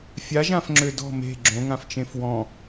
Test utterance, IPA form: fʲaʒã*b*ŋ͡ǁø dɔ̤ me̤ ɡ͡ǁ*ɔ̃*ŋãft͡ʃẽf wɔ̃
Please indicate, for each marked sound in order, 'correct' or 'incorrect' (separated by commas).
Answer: incorrect, incorrect